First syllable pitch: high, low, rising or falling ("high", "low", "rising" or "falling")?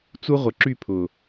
high